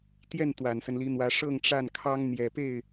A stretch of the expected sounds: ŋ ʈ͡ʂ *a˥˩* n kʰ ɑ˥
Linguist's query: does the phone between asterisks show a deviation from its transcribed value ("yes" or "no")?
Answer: no